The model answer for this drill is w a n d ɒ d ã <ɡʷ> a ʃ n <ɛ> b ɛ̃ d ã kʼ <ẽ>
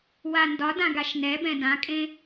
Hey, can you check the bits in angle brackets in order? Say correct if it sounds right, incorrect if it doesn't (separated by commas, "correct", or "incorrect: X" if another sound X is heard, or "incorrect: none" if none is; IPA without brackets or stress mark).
incorrect: ɡ, correct, correct